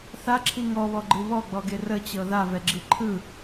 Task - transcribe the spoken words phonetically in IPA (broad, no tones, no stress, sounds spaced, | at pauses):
θ a ǁʰ i ŋ ɔ β ɔ ɡ͡ǃ ɯ β ɔ ɡ͡b ɔ ɡ e r ə t͡ɕ ɤ ð a v ɛ ɡ͡ǁ i ǃʰ ɯ